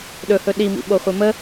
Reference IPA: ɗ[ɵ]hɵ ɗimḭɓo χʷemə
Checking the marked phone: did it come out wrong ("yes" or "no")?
no